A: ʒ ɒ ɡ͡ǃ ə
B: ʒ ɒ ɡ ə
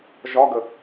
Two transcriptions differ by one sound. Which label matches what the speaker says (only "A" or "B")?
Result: B